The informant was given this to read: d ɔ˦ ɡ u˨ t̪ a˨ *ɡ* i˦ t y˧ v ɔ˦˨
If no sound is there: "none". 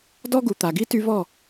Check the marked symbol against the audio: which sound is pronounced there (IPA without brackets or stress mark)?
ɡ